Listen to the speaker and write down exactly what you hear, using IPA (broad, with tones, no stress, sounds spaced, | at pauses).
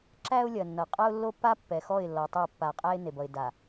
ǁ æ˦ ʊ̯ lʲ ɐ˨ nː ʌ˨ qʼ ʌ˦ ʊ̯ lː o˦ pː a˦ pː ɛ˨ x ɔ˦˨ ɪ̯ lː ɔ˨ tˤ o˦˨ pː a˨ qʼ æ˦ ɪ̯ n e˨ b ʌ˨ ɪ̯ d a˨